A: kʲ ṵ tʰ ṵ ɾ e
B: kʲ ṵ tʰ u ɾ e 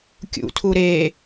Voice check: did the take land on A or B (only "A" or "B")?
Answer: B